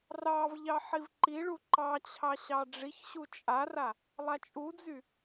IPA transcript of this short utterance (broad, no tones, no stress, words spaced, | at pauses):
rɑvʎɑ ħivǃiɭu ǃɑt͡ɕʰɑ ɕɑɖ͡ʐiçɕu t͡ʃʼara | lˠat͡ʃʼud͡zy